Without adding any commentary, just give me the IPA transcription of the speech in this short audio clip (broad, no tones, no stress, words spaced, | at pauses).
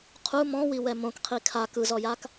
qʰu mɔ̃wiwɛ mõkqʰi kʰa kɯzɔjak